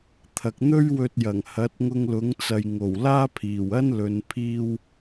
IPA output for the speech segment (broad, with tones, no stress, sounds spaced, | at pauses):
t̪ʰ ɐ˨ k̚ n̪ ɵ˥ ɥ w ɵ˧ t̚ j ɐ˨˩ ŋ h ɐ˨˥ t̚ ŋ ʊ˧ ŋ l ʊ˨˥ ŋ t͡s ɐ˨ j ŋ o˨˩ w l aː˥ pʰ iː˨˩ w ɐ˥ n l ɵ˨˧ n pʰ iː˥ w